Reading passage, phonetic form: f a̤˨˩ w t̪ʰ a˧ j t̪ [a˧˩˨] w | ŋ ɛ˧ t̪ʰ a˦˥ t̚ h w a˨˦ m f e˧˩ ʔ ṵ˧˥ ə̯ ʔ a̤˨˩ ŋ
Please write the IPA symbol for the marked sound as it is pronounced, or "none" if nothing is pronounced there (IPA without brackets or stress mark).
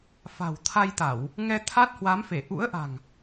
a˧˩˨